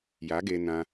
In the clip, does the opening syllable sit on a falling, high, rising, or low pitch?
rising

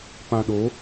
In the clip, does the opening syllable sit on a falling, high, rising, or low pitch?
low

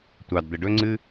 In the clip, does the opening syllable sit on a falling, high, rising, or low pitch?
low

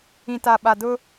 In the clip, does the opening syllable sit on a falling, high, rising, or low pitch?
low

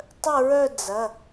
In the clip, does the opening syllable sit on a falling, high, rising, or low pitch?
falling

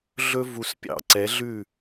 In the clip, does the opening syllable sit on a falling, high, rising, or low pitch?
high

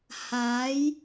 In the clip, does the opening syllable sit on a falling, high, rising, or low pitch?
rising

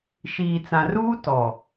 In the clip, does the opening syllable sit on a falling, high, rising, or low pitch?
low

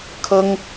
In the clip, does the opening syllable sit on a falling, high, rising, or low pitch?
high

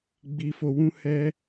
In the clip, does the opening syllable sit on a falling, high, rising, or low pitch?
low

